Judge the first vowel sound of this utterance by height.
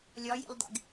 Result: low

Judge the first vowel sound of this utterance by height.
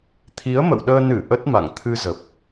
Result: high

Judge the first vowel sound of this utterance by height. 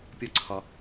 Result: low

